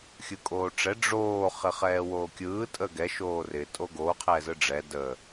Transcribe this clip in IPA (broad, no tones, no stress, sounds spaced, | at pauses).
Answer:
xʲ ɯ kʼ oː ʈ͡ʂ ɛ ɖ͡ʐ oː χ ɪ χ ɛː w oː kʲ ɯː tʼ ə ɡ ɛ ʃ oː r ɪ tʼ o ɡ o qʰ ɛː z ɯ ɖ͡ʐ ɛ d ə